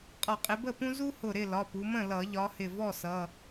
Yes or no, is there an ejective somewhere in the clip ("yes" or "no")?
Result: yes